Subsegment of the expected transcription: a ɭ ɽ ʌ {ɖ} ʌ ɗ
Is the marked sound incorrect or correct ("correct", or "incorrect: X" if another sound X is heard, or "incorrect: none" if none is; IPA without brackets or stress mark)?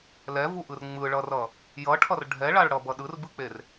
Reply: incorrect: b